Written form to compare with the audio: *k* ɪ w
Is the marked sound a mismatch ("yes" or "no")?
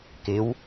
no